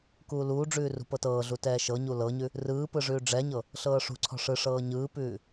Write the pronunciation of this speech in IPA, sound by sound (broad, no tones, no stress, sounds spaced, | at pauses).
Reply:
k uː l uː ɖ͡ʐ ʉː r ṳ p ɤ t ɤː ɮ u t ɛː ʃ ɤ ɲ u l ɤ ɲ ʉ | r ɯː p ɯ ʐ ʉː ɖ͡ʐ ɛ ɲ ɤ | ɬ ɤː ʂ ṳ ǀʰ ɔ̤ ʂ ɯ ʂ ɤː ɲ ɯː p ʉː